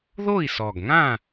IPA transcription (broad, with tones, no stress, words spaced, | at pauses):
ðo˥˨i̯sɔ˨˩ɡŋã˥˨